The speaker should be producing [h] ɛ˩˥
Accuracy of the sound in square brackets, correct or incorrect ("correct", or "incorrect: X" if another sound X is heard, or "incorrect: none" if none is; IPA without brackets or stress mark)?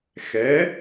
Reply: incorrect: x